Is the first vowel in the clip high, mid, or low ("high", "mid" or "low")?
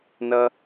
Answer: mid